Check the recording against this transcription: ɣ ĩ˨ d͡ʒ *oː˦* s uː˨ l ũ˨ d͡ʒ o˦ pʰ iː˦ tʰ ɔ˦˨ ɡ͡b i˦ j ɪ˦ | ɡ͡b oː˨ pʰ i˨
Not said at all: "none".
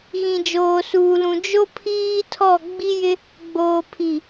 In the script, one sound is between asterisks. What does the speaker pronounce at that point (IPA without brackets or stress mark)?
oː˨